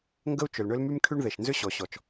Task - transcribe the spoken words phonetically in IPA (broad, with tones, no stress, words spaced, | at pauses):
ŋɡə˥u̯t͡ʃʏ˩lɳʏ˥lmy˥m kʰy˥ɳðe˩ʃ nzʏ˥ɕɔ˩ɕɔ˩t͡ʃ